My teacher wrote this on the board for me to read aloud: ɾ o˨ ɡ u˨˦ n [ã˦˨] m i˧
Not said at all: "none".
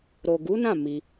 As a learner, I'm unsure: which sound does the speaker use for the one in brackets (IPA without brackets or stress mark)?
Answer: ã˦˨